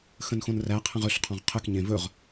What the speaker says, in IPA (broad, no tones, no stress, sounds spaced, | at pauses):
x ə̃ n x õ n r æ qʰ ə̃ ʁ ɵ ɬ qʰ ɔ̃ ʁ qʰ ɘ k ɲ ẽ v ɵ ʁ